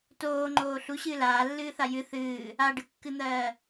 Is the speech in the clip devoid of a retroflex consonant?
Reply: no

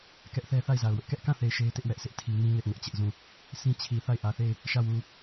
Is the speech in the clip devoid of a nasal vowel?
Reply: no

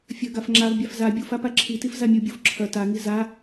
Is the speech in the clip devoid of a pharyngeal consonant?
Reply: yes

